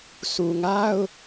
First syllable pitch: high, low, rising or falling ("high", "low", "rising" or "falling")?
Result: low